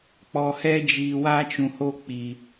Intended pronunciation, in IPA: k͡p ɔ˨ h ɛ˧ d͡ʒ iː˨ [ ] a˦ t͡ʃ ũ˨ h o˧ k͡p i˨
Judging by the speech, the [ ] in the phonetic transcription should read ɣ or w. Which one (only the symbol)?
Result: w